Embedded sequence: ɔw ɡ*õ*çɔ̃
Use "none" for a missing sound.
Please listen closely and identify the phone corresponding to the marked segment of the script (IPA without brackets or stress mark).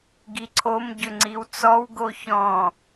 o